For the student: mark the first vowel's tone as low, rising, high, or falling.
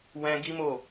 high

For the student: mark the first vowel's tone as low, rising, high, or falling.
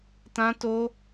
high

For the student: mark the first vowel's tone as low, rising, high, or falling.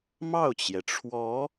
falling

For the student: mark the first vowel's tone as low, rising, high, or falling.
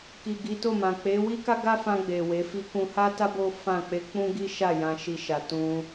low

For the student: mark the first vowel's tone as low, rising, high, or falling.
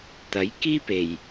rising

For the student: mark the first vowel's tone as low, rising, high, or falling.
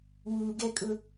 low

